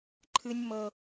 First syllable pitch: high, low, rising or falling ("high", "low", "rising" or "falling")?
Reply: high